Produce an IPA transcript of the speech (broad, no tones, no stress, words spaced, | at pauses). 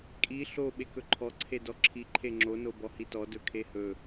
kʼi ɬo ɓekɵǃʰɔ ǀʰedɔǁʰi ǃʰeŋ͡ǁo nobɔhitɔ dɵkʰehɵ